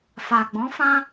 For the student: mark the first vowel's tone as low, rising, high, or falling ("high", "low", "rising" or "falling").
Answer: low